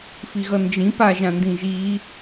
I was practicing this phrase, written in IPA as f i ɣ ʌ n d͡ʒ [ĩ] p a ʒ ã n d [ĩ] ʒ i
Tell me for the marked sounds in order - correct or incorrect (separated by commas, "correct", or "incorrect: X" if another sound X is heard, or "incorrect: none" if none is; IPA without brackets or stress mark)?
correct, correct